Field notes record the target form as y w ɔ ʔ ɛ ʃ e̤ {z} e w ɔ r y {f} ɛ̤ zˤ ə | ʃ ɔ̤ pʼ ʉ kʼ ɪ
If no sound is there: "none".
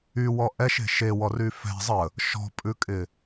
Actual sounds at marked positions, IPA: ʃ, f

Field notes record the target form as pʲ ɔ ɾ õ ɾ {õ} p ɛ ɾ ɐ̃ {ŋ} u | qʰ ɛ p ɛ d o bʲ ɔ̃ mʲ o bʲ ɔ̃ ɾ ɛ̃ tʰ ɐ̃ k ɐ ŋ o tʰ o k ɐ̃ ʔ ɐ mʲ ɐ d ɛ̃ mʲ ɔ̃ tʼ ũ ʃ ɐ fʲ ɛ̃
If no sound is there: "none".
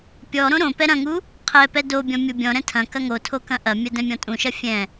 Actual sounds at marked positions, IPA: õ, ŋ

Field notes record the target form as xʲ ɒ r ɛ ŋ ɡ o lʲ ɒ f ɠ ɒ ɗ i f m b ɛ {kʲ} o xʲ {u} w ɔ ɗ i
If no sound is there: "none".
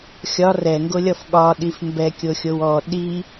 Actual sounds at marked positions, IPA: kʲ, o

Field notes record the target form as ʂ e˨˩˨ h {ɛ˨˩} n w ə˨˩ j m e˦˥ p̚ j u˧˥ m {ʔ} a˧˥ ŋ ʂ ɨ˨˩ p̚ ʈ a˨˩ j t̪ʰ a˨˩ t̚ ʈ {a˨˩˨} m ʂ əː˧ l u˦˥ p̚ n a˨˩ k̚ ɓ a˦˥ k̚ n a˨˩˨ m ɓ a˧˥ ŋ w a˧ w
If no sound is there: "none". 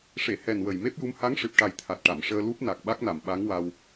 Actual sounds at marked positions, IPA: ɛ˨˩, h, a˨˩˨

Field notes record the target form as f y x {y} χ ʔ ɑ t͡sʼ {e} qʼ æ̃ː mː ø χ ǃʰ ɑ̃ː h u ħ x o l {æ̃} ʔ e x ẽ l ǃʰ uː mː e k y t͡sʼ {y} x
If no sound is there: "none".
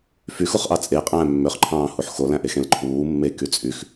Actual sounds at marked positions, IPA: u, e, æ̃, y

